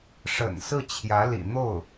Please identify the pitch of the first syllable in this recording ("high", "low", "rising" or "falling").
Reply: low